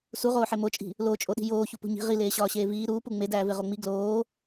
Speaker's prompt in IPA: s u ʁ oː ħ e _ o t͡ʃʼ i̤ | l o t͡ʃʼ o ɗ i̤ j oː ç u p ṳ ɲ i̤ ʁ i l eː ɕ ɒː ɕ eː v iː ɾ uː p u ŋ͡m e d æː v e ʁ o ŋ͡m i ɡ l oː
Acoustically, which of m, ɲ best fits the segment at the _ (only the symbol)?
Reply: m